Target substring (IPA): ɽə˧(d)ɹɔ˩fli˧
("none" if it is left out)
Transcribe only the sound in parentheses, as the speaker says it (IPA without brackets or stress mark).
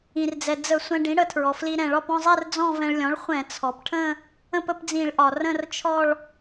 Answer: tʰ